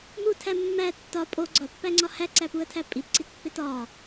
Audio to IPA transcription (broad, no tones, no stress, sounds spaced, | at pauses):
m u tʰ æ mː æ tː ɒ pʼ o ɡ͡ǀ ɒ pː æ ŋ͡ǀ ɒ h æ ǀ æ p u ə̯ tʰ æ pʼ i p ǀ i t pː e t ɒ